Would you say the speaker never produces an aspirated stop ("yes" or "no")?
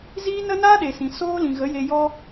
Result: yes